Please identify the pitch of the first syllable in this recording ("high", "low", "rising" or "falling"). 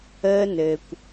high